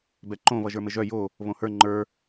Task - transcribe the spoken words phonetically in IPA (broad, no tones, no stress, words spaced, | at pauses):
bɛǃõ βʌʒə˞mɘʒœ jo | βõhə˞ ŋ͡ǃə˞